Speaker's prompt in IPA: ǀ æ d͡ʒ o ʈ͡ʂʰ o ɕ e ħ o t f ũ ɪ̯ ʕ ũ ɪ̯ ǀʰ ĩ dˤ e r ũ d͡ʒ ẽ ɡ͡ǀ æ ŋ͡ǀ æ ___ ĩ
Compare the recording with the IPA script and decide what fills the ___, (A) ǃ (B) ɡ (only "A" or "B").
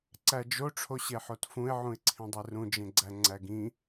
B